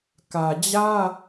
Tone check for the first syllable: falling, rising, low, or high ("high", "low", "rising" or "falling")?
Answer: low